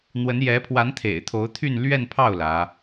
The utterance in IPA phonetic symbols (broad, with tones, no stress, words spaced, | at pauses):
n̪wə˧˥njɛ˧˥ pʰwa˧˥nt̪ʰḛ˨˩ɪ̯t̪ʰo˧˥ʊ̯ t̪ʰy˥˧n lɥɛ˥˧npʰɑ˥˩ʊ̯ lä˧˥